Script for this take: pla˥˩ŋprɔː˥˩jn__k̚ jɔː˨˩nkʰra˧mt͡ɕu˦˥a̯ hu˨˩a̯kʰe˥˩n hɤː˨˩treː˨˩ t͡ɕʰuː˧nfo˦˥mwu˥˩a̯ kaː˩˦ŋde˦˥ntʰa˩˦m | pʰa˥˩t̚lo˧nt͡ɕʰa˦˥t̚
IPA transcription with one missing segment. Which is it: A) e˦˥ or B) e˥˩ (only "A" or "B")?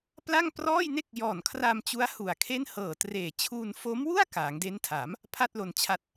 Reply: B